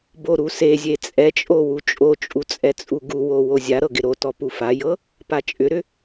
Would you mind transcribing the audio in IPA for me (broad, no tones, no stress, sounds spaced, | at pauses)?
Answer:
b o ɾ u s e zʲ e t͡sʼ ɛ t͡ʃʼ o w u t͡ʃʼ o t͡ʃʼ u t͡sʼ ɛ t͡sʼ u ɡ u w o w o zʲ a ɾ ɤ ɡ ɪ ɾ o t ɔ p u f a j ɤ | p a t͡ʃʼ ʏ ɾ ʏ